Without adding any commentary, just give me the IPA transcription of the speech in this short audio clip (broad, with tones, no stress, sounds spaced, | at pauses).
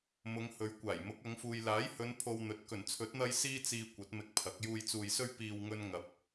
m ʊ˨˧ ŋ h ɵ˨˥ ɥ kʷ aː˨˩ j m ʊ˨˥ k̚ ɐ˨˧ ŋ f uː˨ j l aː˨˥ j h ɵ˨˧ n pʰ o˧ w n̪ ɵ˨˥ t̚ k ɵ˨˩ n t͡sʰ ɵ˨˥ t̚ n̪ ɐ˧ j s iː˧ t͡s iː˨ kʷ ɐ˨˥ t̚ m ɪ˧ k̚ pʰ ɐ˨˥ k̚ j uː˨ j t͡s uː˨ j s ɵ˧ ɥ p iː˨ w ŋ ɵ˧ n ŋ ɐ˨˥ p̚